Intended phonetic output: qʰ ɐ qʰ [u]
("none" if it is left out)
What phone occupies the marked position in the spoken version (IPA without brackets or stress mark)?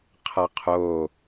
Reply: o